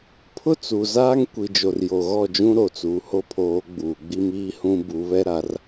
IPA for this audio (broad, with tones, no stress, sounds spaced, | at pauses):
pʰ ʊ˦ t͡s u˨ z aː˦ ŋ kʷ i˨ d͡ʒ o˨ r j o˨ ɣ ɔ˦˨ d͡ʒ ũ˦ ɾ o˨ t͡s uː˨ h o˦ pʰ oː˨˦ ɡ͡b uː˨ ɡ͡b i˦ m iː˦ h ũ˦ b u˨˦ β ɛ˦ ɾ a˨˦ r